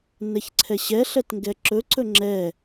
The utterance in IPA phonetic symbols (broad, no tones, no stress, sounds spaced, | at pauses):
n ɛ ç ǀʰ ɛ ɕ ɛ ɬ ɛ t ŋ ɡ ɛ ǁ ɵ ǀ ɵ ŋ͡ǁ ɛ